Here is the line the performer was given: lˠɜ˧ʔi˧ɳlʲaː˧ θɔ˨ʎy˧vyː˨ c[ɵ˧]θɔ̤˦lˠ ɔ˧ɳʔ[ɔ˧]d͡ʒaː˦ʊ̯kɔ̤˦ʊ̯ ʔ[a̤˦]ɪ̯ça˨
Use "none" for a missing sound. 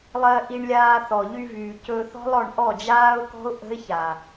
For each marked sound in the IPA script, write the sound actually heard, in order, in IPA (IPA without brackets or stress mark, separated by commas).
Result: ɵ˧, ɔ˦˨, ə̤˦